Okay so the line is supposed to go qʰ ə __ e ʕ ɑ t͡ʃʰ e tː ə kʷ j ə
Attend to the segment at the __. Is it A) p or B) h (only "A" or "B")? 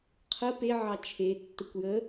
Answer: A